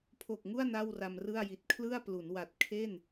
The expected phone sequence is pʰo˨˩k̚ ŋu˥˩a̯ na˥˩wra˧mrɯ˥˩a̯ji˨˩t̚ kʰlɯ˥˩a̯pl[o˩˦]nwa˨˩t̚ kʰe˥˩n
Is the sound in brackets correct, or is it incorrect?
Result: incorrect: u˩˦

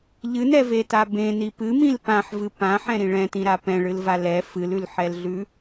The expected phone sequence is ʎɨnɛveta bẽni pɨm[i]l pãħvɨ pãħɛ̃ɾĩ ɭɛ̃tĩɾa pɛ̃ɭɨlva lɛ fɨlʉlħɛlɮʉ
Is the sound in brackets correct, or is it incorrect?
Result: incorrect: ĩ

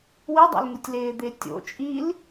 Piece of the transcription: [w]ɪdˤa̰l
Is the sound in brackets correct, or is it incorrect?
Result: correct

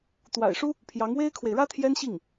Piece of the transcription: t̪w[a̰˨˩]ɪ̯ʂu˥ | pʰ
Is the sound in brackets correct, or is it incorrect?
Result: correct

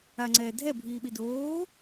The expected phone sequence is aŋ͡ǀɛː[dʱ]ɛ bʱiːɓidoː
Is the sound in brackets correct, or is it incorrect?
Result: correct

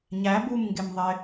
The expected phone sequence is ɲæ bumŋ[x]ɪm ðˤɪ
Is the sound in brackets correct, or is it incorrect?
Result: incorrect: ɡ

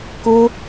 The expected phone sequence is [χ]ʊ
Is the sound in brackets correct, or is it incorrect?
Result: incorrect: k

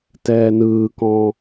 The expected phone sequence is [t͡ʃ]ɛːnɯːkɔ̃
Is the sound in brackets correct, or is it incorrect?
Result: incorrect: t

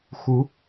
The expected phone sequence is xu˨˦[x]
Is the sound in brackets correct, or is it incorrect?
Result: incorrect: none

